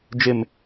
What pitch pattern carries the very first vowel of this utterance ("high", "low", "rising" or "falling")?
low